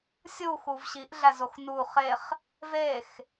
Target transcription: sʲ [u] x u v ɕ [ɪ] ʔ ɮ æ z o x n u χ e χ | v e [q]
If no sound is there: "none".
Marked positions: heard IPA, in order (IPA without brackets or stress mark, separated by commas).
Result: u, i, x